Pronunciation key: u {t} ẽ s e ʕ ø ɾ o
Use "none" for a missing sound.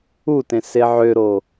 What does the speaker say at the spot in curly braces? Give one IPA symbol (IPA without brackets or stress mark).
t